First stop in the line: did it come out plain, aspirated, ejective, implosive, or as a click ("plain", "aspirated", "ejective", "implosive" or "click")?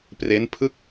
plain